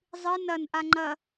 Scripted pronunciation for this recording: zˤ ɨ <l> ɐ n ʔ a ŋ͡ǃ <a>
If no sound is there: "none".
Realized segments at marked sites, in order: n, ɐ

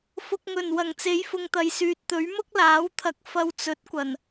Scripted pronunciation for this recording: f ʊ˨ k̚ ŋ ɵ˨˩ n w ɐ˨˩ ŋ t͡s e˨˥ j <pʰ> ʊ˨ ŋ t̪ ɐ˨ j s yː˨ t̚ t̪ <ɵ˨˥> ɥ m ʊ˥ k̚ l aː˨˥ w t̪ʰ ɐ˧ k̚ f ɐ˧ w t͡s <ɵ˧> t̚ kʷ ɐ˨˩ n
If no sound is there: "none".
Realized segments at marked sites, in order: f, ɵ˨˥, ɵ˨˥

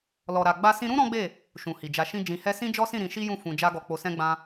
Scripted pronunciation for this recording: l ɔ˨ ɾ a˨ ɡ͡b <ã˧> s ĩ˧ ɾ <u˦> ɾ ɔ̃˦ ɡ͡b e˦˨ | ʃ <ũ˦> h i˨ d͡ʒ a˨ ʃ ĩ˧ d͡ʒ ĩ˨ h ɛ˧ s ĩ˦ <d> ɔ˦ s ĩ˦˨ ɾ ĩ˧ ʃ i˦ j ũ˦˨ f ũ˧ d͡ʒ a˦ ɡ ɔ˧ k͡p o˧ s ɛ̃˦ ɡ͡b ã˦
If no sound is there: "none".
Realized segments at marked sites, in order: a˧, ũ˦, ũ˨, d͡ʒ

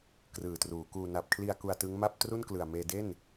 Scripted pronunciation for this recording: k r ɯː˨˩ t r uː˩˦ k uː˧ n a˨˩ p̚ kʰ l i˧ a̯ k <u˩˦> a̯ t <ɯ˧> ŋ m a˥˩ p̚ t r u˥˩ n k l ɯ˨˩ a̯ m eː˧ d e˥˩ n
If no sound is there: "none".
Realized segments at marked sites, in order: u˧, ɯ˦˥

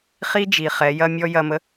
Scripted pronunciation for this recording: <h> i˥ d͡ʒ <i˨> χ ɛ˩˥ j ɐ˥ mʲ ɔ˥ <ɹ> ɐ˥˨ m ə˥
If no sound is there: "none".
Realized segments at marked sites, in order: χ, i˨, j

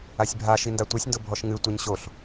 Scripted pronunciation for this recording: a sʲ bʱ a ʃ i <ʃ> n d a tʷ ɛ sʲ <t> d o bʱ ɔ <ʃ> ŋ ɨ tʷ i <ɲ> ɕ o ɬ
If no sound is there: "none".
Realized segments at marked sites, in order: none, n, ʃ, ɲ

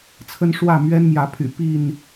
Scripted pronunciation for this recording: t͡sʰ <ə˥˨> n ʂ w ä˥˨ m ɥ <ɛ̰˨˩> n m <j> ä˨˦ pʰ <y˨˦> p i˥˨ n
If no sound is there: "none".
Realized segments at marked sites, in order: ə˦, ɛ˦, j, y̰˨˩

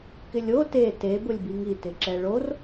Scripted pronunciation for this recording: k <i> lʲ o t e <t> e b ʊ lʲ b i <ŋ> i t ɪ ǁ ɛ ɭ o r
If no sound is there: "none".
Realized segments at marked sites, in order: ɪ, t, ŋ

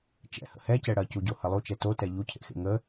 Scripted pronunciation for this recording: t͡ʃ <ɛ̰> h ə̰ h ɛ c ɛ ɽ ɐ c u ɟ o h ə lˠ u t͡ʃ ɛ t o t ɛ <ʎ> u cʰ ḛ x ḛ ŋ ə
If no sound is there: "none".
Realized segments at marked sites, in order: ɛ̰, ʎ

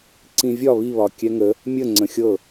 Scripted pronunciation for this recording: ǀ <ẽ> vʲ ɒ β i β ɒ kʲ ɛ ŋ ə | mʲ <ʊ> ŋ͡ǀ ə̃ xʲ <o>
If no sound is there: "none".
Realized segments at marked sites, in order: ĩ, ə, ɤ

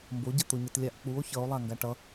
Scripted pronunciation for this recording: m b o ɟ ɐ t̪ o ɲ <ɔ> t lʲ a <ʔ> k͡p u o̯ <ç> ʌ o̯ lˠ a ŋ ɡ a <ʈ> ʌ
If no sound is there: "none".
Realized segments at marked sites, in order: ʌ, ʔ, ç, ʈ

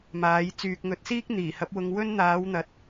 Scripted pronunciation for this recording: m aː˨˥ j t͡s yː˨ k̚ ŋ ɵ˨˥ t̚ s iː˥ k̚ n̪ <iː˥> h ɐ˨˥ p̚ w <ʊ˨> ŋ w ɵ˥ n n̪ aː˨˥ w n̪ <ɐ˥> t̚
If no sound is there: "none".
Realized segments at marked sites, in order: iː˨˩, ʊ˧, ɐ˨˥

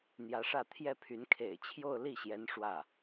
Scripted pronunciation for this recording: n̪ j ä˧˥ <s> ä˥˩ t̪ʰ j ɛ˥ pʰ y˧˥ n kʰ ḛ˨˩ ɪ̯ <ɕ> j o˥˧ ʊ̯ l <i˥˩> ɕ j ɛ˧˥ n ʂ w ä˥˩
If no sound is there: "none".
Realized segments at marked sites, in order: ʂ, t͡ɕʰ, i˥˩

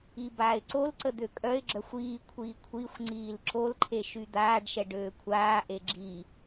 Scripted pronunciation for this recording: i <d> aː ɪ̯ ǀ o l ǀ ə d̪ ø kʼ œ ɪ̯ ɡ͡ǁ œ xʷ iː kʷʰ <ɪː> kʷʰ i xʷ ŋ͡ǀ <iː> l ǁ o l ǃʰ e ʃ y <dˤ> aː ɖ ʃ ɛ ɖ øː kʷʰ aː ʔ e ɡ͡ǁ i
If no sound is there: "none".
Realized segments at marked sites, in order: b, iː, iː, d̪

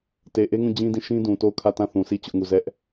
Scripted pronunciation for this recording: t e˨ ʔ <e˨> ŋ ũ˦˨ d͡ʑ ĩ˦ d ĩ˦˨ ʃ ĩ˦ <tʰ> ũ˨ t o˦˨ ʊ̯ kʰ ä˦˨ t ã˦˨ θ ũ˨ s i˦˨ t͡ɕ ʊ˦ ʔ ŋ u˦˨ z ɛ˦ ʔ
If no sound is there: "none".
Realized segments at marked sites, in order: e˦, d

